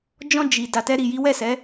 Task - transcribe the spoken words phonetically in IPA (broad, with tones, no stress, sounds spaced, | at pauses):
d͡ʒ ɔ̃˧ d͡ʒ i˨ d a˨ t ɛ˧ ɾ i˨ j i˨˦ w ɛ˦˨ s ɛ˨˦